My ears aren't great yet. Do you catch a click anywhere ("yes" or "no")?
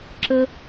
yes